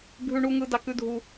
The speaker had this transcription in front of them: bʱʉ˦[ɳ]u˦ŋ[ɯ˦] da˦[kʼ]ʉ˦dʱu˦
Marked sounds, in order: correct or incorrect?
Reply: correct, correct, incorrect: k

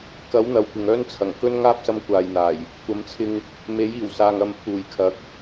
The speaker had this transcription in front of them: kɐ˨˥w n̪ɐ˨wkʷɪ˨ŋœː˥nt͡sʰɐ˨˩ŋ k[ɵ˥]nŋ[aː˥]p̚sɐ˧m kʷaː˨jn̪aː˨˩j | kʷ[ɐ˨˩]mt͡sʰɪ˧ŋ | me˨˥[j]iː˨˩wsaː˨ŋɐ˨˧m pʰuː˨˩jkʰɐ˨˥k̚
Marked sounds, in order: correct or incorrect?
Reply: correct, correct, incorrect: ɐ˨˥, correct

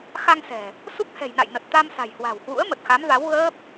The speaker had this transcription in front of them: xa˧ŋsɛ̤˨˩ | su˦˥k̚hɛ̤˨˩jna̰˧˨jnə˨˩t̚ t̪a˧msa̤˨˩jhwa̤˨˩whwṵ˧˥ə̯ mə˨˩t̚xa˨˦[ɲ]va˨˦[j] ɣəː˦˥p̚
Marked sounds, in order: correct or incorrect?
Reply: incorrect: m, incorrect: w

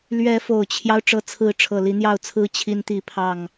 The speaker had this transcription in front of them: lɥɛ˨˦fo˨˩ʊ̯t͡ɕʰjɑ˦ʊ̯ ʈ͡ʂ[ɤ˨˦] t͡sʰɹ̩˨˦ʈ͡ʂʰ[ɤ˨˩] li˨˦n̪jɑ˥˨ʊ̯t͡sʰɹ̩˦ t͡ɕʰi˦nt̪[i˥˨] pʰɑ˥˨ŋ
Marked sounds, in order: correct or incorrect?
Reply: correct, correct, correct

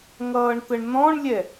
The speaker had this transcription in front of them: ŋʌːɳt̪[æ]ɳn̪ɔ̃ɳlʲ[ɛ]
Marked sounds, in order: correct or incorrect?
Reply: incorrect: ə, correct

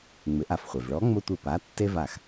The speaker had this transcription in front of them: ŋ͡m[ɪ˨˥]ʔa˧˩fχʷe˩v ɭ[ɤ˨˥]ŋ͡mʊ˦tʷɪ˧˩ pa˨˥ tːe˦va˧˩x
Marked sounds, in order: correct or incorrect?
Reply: correct, incorrect: ɔ˨˥

